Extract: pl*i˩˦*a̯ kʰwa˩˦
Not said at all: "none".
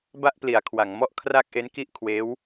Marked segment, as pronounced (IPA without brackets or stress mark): i˩˦